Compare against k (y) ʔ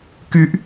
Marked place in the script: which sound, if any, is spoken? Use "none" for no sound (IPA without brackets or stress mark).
y